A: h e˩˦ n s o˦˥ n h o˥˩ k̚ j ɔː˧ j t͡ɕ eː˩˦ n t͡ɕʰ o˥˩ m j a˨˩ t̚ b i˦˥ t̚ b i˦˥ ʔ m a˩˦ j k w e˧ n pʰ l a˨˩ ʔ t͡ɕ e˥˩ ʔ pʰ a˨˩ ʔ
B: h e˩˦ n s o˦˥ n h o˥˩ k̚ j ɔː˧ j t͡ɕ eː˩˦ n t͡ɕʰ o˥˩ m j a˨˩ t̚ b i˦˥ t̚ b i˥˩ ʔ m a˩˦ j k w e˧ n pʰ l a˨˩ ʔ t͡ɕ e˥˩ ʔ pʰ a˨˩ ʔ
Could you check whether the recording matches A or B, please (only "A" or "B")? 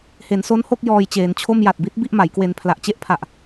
B